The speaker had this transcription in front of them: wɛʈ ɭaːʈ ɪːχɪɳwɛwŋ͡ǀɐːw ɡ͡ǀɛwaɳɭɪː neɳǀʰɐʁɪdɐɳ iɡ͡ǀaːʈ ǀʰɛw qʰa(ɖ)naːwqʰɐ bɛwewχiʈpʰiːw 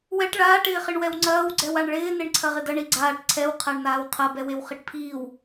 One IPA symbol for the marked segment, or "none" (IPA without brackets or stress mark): ɳ